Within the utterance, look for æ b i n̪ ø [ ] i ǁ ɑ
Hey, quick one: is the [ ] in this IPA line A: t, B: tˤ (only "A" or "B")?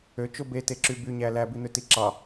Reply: A